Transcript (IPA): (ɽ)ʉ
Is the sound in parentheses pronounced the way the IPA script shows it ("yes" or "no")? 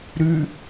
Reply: no